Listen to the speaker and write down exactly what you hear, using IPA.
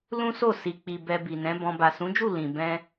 l ũ˦ s o˦˨ s i˨ k͡p i˨ b ɛ˧ b i˨ n ɛ̃˨˦ b ɔ̃˧ b a˨ s ũ˨˦ d͡ʒ u˦˨ l ĩ˨ b ɛ̃˧

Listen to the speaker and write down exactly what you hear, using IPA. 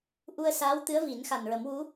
ʔ u˧ ə̯ s aː˧˥ w t̪ ɨ˧˥ ə̯ v i˨˩˦ n x a˨˩ n ɹ ə˨˩˦ m w u˧˥

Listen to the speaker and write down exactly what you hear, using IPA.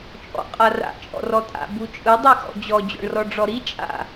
t͡ʃʼ ɔ̰ qʼ a r a̰ t͡ʃʼ ɔ̰ r ɔ tʼ a̰ b u t͡ʃʼ ɯ dˤ i x ɔ̰ d͡ʑ ɔ d͡ʑ ɔ̰ ɳ r ɔ ɖ͡ʐ ɔ ɾ i t͡ʃʼ a̰

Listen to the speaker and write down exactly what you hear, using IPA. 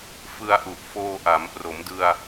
f ɯ˧ a̯ ʔ u˨˩ ʔ f oː˧ ʔ a˩˦ m p r o˩˦ m d ɯ˧ a̯

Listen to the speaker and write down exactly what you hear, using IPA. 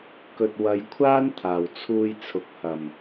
k ɵ˨ t̚ w ɐ˨˧ j kʷʰ aː˥ n t̪ʰ aː˨˩ w t͡sʰ uː˧ j t͡sʰ ʊ˨˥ k̚ h ɐ˨˩ m

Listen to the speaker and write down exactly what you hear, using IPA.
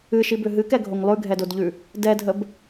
ɨ ʃ i b ʏ ɦ ɨ k ɛ ɡʱ o ŋ lˠ ʉ ɡʱ ɛ d o d ʎ ʉ | d ɛ dʱ ə b

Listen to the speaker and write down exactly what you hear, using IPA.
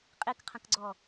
qʼ i k qʰ ɐ̃ k ɡ͡ǀ ɔ

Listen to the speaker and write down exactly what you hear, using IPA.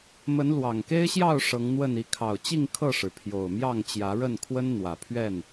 m ə˨˦ n l w ɑ˨˩ ŋ k e˦ ɪ̯ ɕ j ɑ˥˨ ʊ̯ ʂ ɤ˨˦ ŋ n̪ w ə˥˨ n i˨˦ kʰ ɑ˨˩ ʊ̯ t͡ɕ i˥˨ ŋ kʰ ɤ˥˨ ʂ ɻ̩˩ pʰ j o˨˩ ʊ̯ m j ɑ˥˨ ŋ t͡ɕ j ä˨˦ ɻ ə˥˨ n kʰ w ə˦ n n̪ w ä˨˩ pʰ ɥ ɛ˥˨ n

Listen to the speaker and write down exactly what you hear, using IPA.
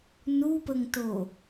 n u p ə ŋ t o

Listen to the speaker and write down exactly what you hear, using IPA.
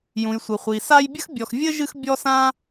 j ũ˩ j sʷ ɘ˩ χʷ i˩ s a˦ j bʲ ɘ˥ x bʲ ɔ˨ x vʲ ɘ˥ ʒ ɨ˦ x bʲ ɔ˥ s ã˥

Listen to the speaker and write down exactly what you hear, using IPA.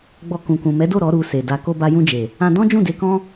ɡ͡b ɔ˧ k ũ˨ k ũ˨ m ɛ˨˦ d o˦˨ ɾ ɔ˨˦ ɾ u˧ s e˨ d a˧ k o˧ b a˧ j ũ˧ d͡ʒ e˨ | ã˧ d ɔ̃˦ d͡ʒ ũ˦˨ d e˧ k ɔ̃˦

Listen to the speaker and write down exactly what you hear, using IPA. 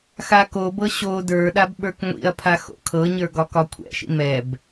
x a k o b ɤ ɕ o d ə˞ ɗ a b ɓ ə˞ k ŋʷ ḭ ɐ̯ pʰ a x o̰ kʰ ɤ ɲ ə˞ ɡ ɒ k ɒ kʷʰ ɛ̰ ʃ ḭ m ɛ b

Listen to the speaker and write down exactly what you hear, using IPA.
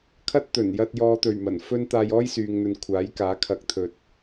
kʰ ɐ˥ t̚ t̪ ɵ˨˩ n j ɐ˧ t̚ j ɔː˨ t̪ ɵ˨˩ ɥ m ɐ˨˩ n f ɵ˥ n t̪ aː˧ j ɔː˥ j s yː˨ ŋ n̪ ɵ˨ n kʷʰ aː˨˥ j k aː˨˥ kʰ ɐ˨˥ k̚ t̪ʰ ɵ˨ t̚

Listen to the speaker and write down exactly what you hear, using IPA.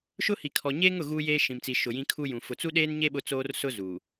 ʃ ʊ˦ h i˨ kʰ ɔ˨ ɲ eː˦ ŋ ʊ˨ ɣ uː˦ j eː˦ ʃ ĩ˨ m t͡s i˨ ʃ ʊ˨ j ĩ˦ kʰ u˦ j ũ˨ f ʊ˨ t͡s u˦ ɗ eː˦ n ɲ e˦ ɓ ʊ˦ t͡s oː˦ r s ʊ˦ z u˨

